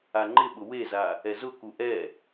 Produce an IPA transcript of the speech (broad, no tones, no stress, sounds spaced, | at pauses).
a ŋ͡ǃ ɪ ɓ ʊ w e z a | ɛ z ʊ k u ʔ ɛ